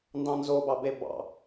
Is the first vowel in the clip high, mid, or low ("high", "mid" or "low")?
low